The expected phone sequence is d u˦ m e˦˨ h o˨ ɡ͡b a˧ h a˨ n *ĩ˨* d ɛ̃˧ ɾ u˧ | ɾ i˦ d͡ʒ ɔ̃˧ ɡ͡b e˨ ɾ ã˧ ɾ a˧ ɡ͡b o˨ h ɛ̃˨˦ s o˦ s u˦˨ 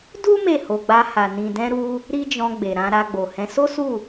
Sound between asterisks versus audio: correct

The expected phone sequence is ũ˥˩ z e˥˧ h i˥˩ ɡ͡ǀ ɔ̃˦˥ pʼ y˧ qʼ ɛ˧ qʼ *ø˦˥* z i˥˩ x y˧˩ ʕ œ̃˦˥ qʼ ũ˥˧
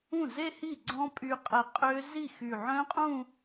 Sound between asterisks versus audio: correct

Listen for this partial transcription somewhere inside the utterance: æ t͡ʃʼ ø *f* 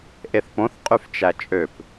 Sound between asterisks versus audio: incorrect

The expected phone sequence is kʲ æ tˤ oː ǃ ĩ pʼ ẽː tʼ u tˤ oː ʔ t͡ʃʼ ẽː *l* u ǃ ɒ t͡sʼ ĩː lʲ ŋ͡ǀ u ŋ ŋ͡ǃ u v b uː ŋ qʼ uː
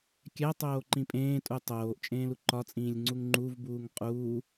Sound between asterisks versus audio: correct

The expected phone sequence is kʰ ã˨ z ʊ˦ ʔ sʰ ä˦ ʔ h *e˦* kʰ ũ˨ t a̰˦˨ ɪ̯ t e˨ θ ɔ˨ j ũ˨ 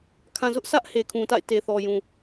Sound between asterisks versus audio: incorrect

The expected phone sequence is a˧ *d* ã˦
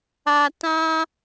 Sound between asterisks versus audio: incorrect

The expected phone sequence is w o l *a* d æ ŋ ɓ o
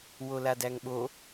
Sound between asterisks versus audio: correct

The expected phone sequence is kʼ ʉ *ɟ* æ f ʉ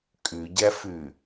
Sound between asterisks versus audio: correct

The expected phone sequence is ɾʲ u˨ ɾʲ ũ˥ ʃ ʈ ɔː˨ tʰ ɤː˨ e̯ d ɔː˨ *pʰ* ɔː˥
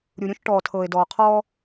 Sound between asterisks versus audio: incorrect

